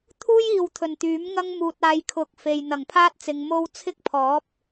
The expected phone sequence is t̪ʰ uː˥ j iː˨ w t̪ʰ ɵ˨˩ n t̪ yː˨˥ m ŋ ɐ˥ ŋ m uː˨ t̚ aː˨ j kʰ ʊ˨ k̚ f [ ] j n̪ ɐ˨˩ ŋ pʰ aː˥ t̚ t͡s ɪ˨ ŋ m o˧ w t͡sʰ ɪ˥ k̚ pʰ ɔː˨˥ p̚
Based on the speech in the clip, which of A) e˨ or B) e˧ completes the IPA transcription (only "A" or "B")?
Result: A